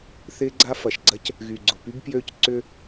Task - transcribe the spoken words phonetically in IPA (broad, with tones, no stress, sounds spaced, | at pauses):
θ ɪː˦ ɡ͡ǀ a˦ f ɐ˨ ʃ ɡ͡ǀ ɐ˦ c | ɣ y˨ ɡ͡ǀ ʊ˨ p y˦ b p j ø˦˨ c ǀ ʏ˦